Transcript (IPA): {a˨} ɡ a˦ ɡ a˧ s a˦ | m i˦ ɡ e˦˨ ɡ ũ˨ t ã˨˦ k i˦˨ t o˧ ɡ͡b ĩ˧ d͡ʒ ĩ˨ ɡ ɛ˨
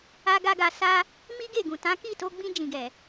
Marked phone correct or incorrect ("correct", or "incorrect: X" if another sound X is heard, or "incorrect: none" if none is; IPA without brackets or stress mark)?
incorrect: a˧